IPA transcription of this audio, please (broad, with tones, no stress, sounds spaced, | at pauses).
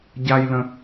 ɟ a˥ j l ə̃˦